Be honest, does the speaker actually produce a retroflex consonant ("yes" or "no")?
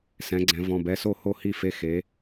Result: no